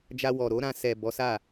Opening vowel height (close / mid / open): open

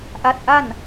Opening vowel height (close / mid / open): open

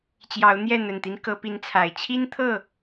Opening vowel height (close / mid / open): open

